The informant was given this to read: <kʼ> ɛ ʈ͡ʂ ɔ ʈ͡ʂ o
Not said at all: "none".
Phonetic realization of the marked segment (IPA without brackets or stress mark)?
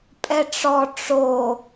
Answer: pʼ